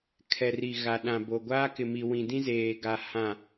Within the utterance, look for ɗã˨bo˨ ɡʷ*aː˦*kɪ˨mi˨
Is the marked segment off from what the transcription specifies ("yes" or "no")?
no